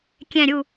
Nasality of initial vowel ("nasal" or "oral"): nasal